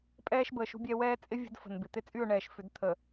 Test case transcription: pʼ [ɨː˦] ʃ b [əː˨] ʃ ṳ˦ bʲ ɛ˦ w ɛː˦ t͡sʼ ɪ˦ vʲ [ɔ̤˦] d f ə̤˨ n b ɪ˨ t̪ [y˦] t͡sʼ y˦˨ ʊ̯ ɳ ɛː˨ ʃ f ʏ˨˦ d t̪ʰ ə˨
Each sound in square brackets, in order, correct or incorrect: incorrect: ɛː˦, correct, incorrect: ə̤˦, incorrect: ɪ˦

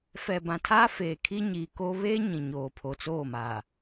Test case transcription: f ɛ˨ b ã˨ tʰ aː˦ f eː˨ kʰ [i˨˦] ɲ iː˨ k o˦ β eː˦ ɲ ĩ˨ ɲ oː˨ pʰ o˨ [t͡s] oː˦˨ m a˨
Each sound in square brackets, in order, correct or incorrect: incorrect: i˦, correct

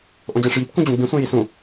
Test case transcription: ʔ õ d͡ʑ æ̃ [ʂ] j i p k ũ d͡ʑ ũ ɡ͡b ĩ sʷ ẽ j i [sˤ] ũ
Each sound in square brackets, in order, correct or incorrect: correct, incorrect: s

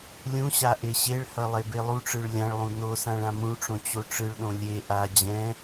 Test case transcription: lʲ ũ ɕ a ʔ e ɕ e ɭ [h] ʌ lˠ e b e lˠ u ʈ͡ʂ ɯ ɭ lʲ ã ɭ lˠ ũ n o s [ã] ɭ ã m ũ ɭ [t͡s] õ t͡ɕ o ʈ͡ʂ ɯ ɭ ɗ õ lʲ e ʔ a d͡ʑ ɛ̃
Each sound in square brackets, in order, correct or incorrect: correct, correct, incorrect: ʈ͡ʂ

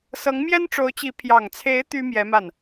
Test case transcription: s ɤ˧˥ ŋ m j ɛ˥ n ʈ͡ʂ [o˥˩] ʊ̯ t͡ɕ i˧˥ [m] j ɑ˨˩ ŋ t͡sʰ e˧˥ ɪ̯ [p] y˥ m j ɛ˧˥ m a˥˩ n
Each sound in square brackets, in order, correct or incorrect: incorrect: o˧˥, incorrect: pʰ, incorrect: t̪

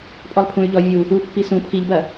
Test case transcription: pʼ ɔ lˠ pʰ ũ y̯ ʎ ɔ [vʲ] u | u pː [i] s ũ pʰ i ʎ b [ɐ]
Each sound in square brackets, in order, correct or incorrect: correct, correct, correct

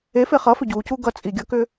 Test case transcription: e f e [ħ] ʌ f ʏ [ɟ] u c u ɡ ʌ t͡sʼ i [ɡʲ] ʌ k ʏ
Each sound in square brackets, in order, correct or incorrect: incorrect: χ, correct, correct

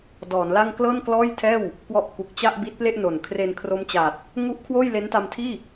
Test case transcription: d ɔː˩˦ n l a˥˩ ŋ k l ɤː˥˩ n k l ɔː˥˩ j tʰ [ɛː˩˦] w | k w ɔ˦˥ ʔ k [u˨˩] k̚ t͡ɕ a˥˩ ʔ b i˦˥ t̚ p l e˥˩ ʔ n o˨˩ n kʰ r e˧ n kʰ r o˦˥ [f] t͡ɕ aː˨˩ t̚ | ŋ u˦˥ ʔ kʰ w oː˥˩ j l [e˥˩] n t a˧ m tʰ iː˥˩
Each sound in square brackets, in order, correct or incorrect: incorrect: ɛː˥˩, correct, incorrect: m, incorrect: e˦˥

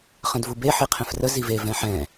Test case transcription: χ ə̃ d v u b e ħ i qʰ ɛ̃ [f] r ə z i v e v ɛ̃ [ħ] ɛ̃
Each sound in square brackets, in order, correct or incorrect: correct, correct

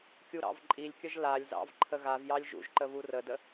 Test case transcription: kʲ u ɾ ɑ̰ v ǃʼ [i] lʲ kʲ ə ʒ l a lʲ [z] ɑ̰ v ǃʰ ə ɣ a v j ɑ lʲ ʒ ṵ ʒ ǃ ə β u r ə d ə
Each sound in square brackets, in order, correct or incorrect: correct, correct

